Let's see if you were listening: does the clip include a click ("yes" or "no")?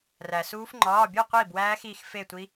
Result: yes